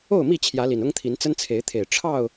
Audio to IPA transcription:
o˥˨ʊ̯mi˥˨ t͡ɕʰjä˨˦li˨˩nʊ˦ŋt̪ʰi˨˦n t͡sə˦nt͡sʰe˨˦ɪ̯t̪ʰe˨˩ɪ̯ ʈ͡ʂʰɑ˥˨ʊ̯

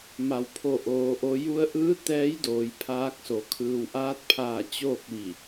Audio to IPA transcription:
ma˩˧wpʰo˧˩ ʔoː˩˧ʔo˧ ju˧ə̯ʔɯː˧˥ t̪ɛː˧˥jdoː˩˧jpʰaː˧k̚so˩˧ kʰɯː˩wʔaː˧˥t̚pʰaː˧˩ t͡ɕoː˥˨k̚ʋi˧˩

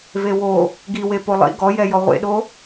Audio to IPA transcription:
vewo | ɡiwe polˠḭ ɡɔjɛjɔ ʁʷḛɗo

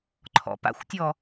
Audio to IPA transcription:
ǃʰɔ̰pa̰xʷtʲɔ

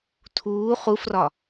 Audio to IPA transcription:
tʰuː χufrɒ

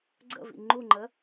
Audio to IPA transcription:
ɡ͡ǀə̰vḭ ŋ͡ǃuŋ͡ǃə

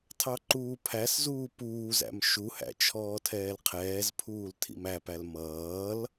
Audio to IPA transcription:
tʰɑǃuːpʰæszuː puːzæ̰m ʃuhæ̰ t͡ʃʰɔːtʰɛːlqʰɛːzpʰuːl tʰḭmæpæl mʌːl

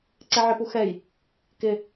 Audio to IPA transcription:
ǀɛʕɪpu xɛj | kɪ

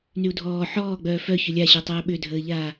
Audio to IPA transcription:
nyu̯dʱɔː ħɔː ɡ͡bœːfœ çʏlʲaɕəːtˤœː ɓʏdʱəːʎaː

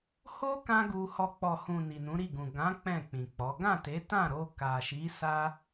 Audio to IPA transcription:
ho˦ kã˦ɡu˧hɔ˧ k͡pɔ˨hũ˨ ni˨nũ˨˦ɾi˦˨ɡũ˨ ɡã˨˦ k͡pɛ̃˦˨k͡pĩ˨k͡pɔ˨˦ ɡã˦˨te˨˦tã˦˨ɾo˧ ka˨ʃi˨˦ sa˧

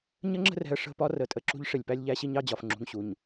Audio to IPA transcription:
ɲə˦ŋ͡ǁə̤˦rɛ̤˨ə̯ ʂə̤˦ pɒ˦ rə˨tʼə˨ǁṳ˦ʎ ʂɪ˨lʲ pæ˦lʲʎæ˦ɕi˦ɲɑ˦ d͡ʑɒ˨f ŋ͡ǁṳ˨ŋɕu˨ɲ

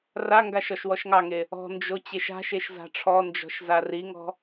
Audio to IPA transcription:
raŋɡaʃ ɔʃwɔʃŋɑŋe | ɔ̤nd͡ʒo t͡ɕeʃa̤ʃeʃ za̤ʈ͡ʂʰɔnd͡ʒɔ̤ʃ zariŋɔ̤

